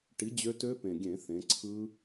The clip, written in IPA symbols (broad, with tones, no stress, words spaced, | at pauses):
ʈi˨˥ d͡ʑø˦˥ tø˦˥pẽ˨˩ɡʲẽ˧˩˧ θẽ˩˧ǀʰɯ˦˥